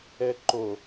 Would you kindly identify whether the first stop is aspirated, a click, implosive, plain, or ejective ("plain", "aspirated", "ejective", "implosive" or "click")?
click